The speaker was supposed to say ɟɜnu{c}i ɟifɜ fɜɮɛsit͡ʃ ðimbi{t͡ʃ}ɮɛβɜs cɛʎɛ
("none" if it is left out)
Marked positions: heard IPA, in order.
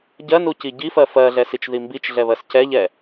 c, t͡ʃ

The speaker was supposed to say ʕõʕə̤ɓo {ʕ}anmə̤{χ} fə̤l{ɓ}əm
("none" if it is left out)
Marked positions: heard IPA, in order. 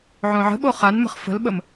χ, χ, ɓ

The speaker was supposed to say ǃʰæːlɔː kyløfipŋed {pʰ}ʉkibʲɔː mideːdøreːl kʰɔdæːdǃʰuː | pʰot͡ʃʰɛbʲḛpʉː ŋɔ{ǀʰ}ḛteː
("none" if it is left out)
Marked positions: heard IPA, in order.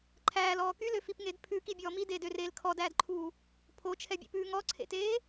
pʰ, ǀʰ

